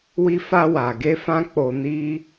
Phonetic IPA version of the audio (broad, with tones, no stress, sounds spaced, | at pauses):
w i˧ f a˧ w a˨ ɡ e˧ f ã˦ k͡p o˧ n i˦